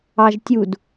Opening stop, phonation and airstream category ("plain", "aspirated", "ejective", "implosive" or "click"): plain